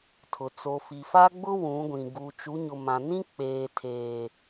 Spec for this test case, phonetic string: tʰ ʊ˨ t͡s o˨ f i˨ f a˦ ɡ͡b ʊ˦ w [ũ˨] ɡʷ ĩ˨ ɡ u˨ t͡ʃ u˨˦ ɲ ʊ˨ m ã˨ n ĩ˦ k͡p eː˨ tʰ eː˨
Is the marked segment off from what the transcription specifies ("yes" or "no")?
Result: yes